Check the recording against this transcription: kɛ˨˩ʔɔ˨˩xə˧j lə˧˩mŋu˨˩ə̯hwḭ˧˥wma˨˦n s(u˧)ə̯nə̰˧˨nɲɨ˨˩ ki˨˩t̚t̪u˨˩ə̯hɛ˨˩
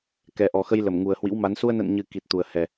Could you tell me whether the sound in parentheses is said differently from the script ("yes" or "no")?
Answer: no